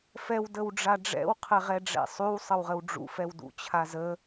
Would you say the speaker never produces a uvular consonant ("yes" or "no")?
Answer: no